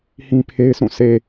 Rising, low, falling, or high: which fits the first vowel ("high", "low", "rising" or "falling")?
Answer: high